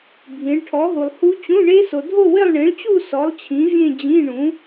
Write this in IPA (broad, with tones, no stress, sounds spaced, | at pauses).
bʱ ĩ˨˥ ɭ ʈʰ ɔ˨˥ ɦ u˨ lˠ h u˦˥ t͡ɕ ũ˧˥˧ ɳ e˦˥ s o˨ dʱ o˥˧ w ɪ˥˧ lˠ ɳ ĩ˨˥ ɭ t͡ɕ u˥˧ s ɔ˨˥ lˠ t͡ɕʰ ĩ˨˥ vʲ ẽ˥˧ d͡ʑ ĩ˧˥˧ ɳ ũ˨˥